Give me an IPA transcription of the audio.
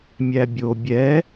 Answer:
mʲ æ bʲ o bʲ ɛ

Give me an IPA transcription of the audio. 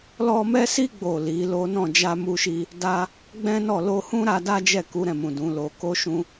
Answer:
l ɔ˧ m ɛ˦ s i˦ ɡ͡b o˦˨ l i˨˦ l o˦ n ɔ̃˦˨ d͡ʒ a˧ m u˧ ʃ i˧ | d a˦ | ɡ͡b ɛ̃˦ n ɔ˦˨ l o˧ h ũ˦ ɾ a˧ d a˦ d͡ʒ ɛ˦˨ k u˨˦ ɾ ɛ̃˦˨ m ũ˨ d ũ˨˦ l o˧ k o˦ ʃ ũ˦

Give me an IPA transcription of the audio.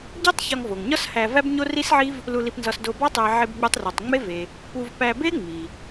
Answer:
ɟ o˥ tˤ ç ɒ˧ ŋ v o˩ ŋ ɲ ɒ˥ s h æ˧ v æ˥ b ɲ o˥ r i˥ s ʕ i˥ v | l u˧ l i˧ p n z ɒ˧ s d o˧ b ɒ˥ tˤ æ˧ ʕ e˧ b ɡ͡b u˧ tˤ r u˩ tˤ ŋ͡m e˥ v e˩ | p u˧ v p æ˧ b e˥ ŋ͡m i˩

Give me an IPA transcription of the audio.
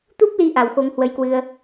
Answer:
t̪ u˦˥ p̚ l i˨˦ ʔ a˨˩ w x o˨˦ ŋ h w ə˨˦ j k w ɨ˧ ə̯

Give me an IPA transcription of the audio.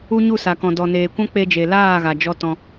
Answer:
u˦ ɲ u˦˨ s a˨ k ɔ̃˨ d ɔ˨ n eː˨ kʷ ã˦ k͡p e˧ d͡ʒ e˨ l aː˦˨ ɣ a˨ d͡ʒ ɔ˦ t ɔ̃˧

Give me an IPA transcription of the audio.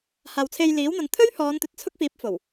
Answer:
h aː˨ w t͡sʰ e˧ j l iː˨˥ w n̪ ɐ˨˧ n t̪ʰ ɵ˥ ɥ h ɔː˨˧ n t̪ ɵ˨ t̚ t͡sʰ ʊ˥ k̚ f iː˨˥ p̚ f o˨˩ w

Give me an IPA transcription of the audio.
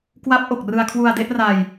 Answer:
k w a˦˥ p̚ ʔ o˨˩ k̚ r ɯ˧ a̯ kʰ w u˧ a̯ d e˦˥ ʔ r a˧ j

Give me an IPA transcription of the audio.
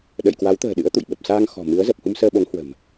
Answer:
ɗ ə̰˧˨ j k w a˨˦ w t̪ ə̤ː˨˩ ɗ ɨ̰˧˥ ə̯ t̪ ṵ˧˨ j ɓ ə˨˩ p̚ s aː˧ ŋ x ɔ̤˨˩ m ɨ˨˦ ə̯ z ə˨˩ p̚ h u˧ m s əː˧ ɓ o˨˦ ŋ h w ə̤˨˩ m

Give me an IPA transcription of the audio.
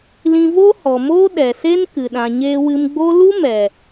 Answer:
l ĩ˧ v o˦ h ɔ˨ m oː˦ ɗ ɛ˨ s e˦ n k ɨ˨ ɗ ã˨ ɲ eː˧ w ɨ˧ m ɡ͡b o˦ l u˦ m ɛ˨

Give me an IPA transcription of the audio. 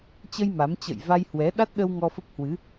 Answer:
t͡ɕ ə˧ j m a˨˦ m t͡ɕ ə̰˧˨ j v a˧ j h w ɛ˨˦ ɗ a˦˥ t̚ ɗ ə˧ w ŋ ɔ˧ f ə˦˥ p̚ h w ɨ˨˦

